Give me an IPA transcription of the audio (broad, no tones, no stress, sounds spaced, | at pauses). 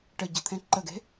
ʈ ə ɟ ə̤ t̪ʰ ẽ ǃ ə ɡ e̤